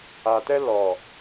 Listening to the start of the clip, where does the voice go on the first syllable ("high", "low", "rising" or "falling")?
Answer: low